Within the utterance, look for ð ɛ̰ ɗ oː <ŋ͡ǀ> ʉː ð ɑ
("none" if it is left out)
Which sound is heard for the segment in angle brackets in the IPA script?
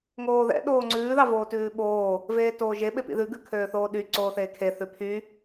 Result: ŋ͡ǀ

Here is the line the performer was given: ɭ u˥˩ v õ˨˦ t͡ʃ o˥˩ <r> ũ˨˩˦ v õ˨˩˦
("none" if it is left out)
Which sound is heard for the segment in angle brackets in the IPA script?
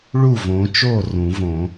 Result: r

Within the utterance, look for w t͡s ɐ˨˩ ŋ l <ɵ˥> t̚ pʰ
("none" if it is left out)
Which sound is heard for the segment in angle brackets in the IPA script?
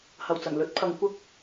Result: ɵ˨˥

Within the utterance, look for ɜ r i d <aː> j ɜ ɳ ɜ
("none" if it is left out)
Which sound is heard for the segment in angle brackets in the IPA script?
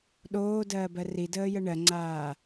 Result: əː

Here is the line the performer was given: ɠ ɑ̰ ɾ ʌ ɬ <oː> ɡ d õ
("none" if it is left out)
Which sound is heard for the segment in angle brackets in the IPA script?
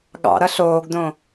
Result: oː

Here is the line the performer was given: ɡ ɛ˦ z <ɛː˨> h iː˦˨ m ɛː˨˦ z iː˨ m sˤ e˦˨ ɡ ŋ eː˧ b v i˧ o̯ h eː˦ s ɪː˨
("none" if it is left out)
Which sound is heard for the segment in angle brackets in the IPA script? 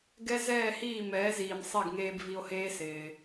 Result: ɛː˦˨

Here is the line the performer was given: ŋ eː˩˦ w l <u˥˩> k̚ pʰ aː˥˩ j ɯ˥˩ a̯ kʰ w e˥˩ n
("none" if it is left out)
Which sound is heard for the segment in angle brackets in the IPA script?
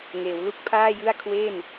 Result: u˥˩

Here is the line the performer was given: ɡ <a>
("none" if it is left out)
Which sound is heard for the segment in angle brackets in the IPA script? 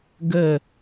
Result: ə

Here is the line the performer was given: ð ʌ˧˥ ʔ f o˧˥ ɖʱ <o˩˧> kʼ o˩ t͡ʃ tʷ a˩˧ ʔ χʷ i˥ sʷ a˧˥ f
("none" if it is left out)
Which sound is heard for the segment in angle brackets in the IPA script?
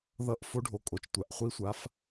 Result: o˩˧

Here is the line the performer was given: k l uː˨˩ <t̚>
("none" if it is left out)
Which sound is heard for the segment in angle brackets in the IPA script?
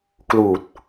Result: t̚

